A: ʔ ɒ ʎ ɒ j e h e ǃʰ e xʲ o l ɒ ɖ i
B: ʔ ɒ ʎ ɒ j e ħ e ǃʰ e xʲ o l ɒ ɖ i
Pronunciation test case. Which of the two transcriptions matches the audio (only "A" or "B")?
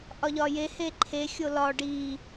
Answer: A